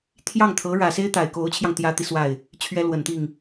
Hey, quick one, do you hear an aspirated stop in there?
yes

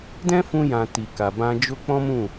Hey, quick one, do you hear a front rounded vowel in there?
no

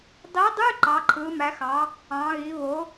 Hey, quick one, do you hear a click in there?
yes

